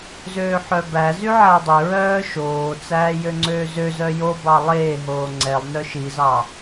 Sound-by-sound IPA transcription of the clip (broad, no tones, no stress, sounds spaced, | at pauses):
z øː ħ œ b æ z y ʕ æ dˤ ø ɹ œː ʃ oː t͡s æː j ø ŋ͡ǀ øː z ø z œ j o b ɑ lˠ eː ɦ oː ŋ͡ǀ ɛ lˠ n œ ʃ i z ɑ